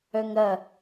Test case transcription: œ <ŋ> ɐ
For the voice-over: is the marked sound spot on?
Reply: yes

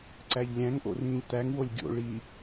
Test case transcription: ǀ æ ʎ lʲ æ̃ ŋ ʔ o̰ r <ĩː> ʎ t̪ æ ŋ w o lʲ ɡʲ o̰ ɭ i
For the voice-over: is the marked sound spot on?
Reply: yes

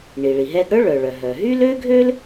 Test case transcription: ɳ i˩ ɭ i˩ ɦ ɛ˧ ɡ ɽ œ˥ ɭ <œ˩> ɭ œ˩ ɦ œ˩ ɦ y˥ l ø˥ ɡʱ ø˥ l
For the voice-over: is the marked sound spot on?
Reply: yes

